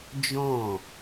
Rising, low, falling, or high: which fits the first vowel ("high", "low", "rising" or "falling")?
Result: falling